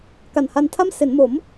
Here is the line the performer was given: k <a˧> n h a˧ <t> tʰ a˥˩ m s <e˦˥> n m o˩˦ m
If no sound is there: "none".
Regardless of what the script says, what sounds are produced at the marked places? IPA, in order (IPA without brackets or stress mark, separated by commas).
a˨˩, n, e˩˦